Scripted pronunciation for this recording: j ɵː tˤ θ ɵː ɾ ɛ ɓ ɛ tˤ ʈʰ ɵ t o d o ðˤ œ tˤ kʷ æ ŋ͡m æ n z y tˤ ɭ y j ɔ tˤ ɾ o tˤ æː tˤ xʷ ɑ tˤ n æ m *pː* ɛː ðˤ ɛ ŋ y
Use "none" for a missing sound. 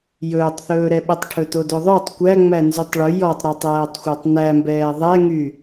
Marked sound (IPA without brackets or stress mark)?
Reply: b